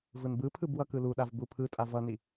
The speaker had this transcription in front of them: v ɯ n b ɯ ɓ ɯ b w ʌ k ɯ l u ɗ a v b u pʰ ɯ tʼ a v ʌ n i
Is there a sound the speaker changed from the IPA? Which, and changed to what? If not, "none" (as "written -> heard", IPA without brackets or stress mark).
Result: ɓ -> pʰ